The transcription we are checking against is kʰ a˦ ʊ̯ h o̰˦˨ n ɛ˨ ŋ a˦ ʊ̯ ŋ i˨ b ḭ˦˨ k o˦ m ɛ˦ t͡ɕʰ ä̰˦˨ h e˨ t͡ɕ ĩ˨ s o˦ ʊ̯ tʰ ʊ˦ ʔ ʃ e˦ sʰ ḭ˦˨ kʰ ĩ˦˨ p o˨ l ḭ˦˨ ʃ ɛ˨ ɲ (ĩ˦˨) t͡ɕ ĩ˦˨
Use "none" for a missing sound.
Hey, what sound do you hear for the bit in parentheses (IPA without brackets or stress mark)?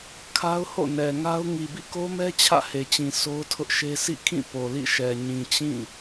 ĩ˨